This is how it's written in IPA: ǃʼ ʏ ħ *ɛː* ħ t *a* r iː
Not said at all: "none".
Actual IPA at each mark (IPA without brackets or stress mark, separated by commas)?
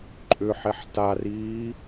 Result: ɛ, a